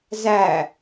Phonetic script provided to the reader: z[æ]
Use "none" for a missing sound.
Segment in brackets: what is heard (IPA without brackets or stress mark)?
æ